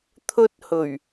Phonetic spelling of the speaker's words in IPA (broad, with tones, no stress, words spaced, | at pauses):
t̪ʰɵ˧t̚hɵ˨˩ɥ